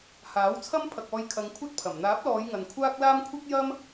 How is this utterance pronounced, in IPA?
h aː˨˥ w t͡sʰ ɐ˥ m pʰ ɐ˨ k̚ ɔː˧ j kʰ ɐ˨˧ ŋ kʷʰ ɐ˥ t̚ pʰ ɐ˨˩ m n̪ aː˨˥ p̚ l ɔː˨˧ j ŋ ɐ˨ n kʷʰ aː˥ k̚ l aː˥ m kʷʰ ɐ˥ k̚ j ɐ˥ m

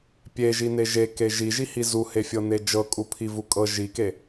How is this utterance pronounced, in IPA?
pʲ e ʒ i n e ʒ e k e ʒ i ʒ i h i z u h e fʲ ɤ n e d͡ʒ ɤ kʼ u pʰ i v u kʼ ɤ ʒ i k e

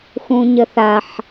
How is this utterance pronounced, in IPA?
x ũ ɲ ə θ a ħ

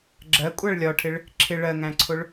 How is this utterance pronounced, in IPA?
ɡ͡ǁ ɜ kʷʼ æ ɭ lʲ ɒ ʈʰ ɪ ɭ | ǁʰ ɪ ɭ ɜ ŋ æ̃ ǀʰ ʊ ɭ

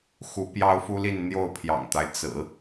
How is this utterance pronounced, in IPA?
x u˧˥ p j ɑ˥ ʊ̯ f u˥ l i˥˧ n n̪ j o˥˩ ʊ̯ pʰ j ɑ̰˨˩ ŋ t̪ a˦ ɪ̯ t͡s ɹ̩˨˩˦

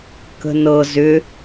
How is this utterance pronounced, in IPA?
k ə̤ n ɤ z ʏ

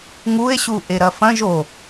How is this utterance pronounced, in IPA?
ŋ u e̯ ɕ u ʔ e ɾ ɐ f ɐ̃ ʒ o

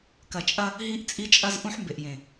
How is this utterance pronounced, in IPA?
k ɐ˨ t͡ʃʼ ɐ˦ | ɦ i˦ ʔ t͡sʼ i˦ t͡ʃʼ ɐ˦ z ʔ ũ˦ ħ m b e˨ ʔ j ẽ˨

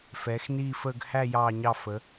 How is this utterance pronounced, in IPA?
f ɛː˨˦ x n iː˥˧ f əː˥˧ ɡ h æ˥˧ j ɑː˥˧ ɲ ɑ˥˧ f ə˨˦

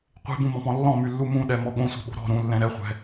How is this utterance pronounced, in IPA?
qʷ e̤ b ũ m ɔ̃ p ɔ̃ lː ɔ̃ m y lː u m ũ ɗ ɛ m ɔ ɠ õ sʷ e̤ ɓ o̤ ɾ ɔ̤ ɾ ũ lː ɛ̃ ɾ ɛ χʷ ɛ̤

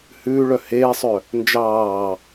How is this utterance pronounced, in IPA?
h ʉː ɭ œ h eː sˤ œ | n d͡ʒ ɑː

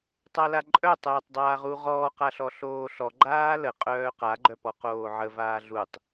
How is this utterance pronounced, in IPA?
tˤ a l a ǃʼ œ tˤ əː tˤ dˤ aː ʁ u ʁ ɔː q a ɬ ɔ ɬ oː ɬ ɔ ɡ͡ǃ aː l ə qʼ œː q a ɡ͡ǃ œ p ɔ q oː ʕ ə v aː ɮ u tˤ

